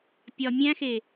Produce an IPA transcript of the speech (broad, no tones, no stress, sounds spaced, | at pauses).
pʲ ɒ mʲ æ̃ x e